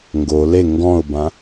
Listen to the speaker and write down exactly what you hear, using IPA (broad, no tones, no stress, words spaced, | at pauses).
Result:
ŋɡo le ŋɡɔ̃ʊ̯bã